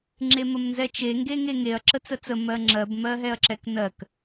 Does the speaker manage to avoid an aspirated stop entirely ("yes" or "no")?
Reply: yes